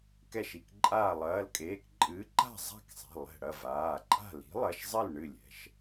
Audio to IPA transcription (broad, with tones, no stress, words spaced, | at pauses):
kɛ˧˩ʃi˩˧˩k ǃʼaː˧˩lˠɐː˩˧˩lkʼeː˩˧˩kǃʼɨː˨˥ ǃa̤˥˨zˤa̤˥˨ksˤɛ̤˩˧˩ lˠɛ̤˧˩ ɽɐ˥˨vaː˩˧˩ǃʼa̤˥˨ li̤˨˥lˠɐ˩˧˩ʃzˤɘ˥˨l ɳɨ˥˨lʲɛ̤˩˧˩ʃ